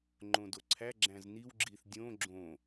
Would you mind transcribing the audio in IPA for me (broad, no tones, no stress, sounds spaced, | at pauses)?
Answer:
ŋ͡ǃ õ d o ǀʰ æ ɡ͡ǁ æ̃ z n i w ɡ͡ǁ i θ dʲ õ ɡ͡ǁ õ